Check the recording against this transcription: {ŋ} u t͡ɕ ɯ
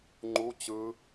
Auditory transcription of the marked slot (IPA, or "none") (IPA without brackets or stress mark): ŋ͡ǃ